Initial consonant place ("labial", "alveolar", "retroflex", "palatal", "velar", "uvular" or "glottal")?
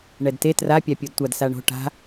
retroflex